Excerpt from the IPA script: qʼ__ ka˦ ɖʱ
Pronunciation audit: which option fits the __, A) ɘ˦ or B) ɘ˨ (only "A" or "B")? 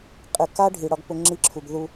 B